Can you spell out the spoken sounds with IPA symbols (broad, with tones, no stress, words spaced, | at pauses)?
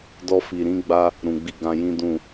dɔ˧fi˨ ɾĩ˧ɡ͡ba˧ | ɾũ˨ɡ͡bi˧ ɡã˧jĩ˦ dũ˦˨